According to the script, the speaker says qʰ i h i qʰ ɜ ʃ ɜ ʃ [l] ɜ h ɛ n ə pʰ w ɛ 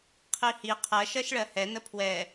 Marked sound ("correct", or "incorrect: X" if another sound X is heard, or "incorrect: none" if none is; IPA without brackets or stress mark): incorrect: ɭ